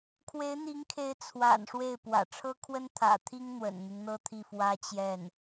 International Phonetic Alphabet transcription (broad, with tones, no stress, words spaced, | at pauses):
kʰwe˧˥ɪ̯n̪i˧˥ŋkʰe˧˥ɪ̯ t͡sʰwa̰˨˩n ʂwe˥˩ɪ̯pwä̰˨˩ ʈ͡ʂʰɤ˥kʰwə˥n t̪ʰä̰˨˩t̪ʰi˥ŋ n̪wə̰˨˩nn̪i˦ŋn̪ɤ˥ t̪ʰi˥˩fwä˥ t͡ɕjɛ˥˩n